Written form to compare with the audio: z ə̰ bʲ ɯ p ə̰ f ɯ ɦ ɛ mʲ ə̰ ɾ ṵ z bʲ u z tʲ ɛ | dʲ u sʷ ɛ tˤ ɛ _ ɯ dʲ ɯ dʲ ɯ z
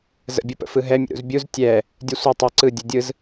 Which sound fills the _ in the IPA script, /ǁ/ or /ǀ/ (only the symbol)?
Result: ǀ